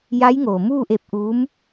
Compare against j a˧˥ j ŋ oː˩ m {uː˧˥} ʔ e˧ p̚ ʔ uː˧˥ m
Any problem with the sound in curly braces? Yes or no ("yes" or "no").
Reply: yes